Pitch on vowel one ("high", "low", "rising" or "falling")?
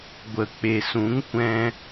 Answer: low